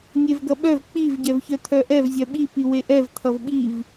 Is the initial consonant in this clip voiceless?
no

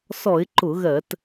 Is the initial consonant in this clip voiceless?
yes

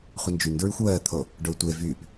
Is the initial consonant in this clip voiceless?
yes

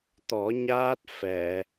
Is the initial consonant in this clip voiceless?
yes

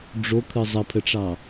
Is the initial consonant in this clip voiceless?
no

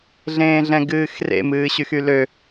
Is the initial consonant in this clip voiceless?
no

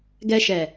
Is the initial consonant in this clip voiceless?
no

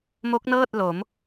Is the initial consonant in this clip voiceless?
no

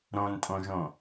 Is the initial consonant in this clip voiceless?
no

